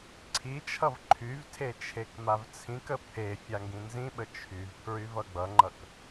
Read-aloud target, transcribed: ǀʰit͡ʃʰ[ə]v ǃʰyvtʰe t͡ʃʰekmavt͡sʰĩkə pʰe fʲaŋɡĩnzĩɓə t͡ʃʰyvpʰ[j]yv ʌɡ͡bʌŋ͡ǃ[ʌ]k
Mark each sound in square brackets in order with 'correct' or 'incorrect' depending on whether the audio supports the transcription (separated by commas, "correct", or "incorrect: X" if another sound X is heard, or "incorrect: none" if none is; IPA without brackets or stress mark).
incorrect: ʌ, incorrect: ɹ, correct